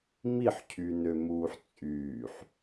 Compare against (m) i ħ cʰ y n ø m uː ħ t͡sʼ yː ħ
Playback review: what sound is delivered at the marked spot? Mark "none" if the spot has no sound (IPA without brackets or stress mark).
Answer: m